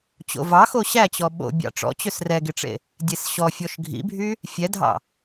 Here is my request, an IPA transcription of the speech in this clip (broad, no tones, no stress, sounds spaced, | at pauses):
t͡ɕ o̰ v ɑ x o ɕ æ t͡ɕ ɔ ɓ o̰ bʲ ɑ̰ ʈ͡ʂ ɔ̰ t͡ɕ ø s r ɛ ɡ e ʈ͡ʂ ḛ | dʲ e s ɕ ɔ fʲ ɔ ʃ ɡʱ ḭ bʱ y | fʲ ɛ dʱ ɑ̰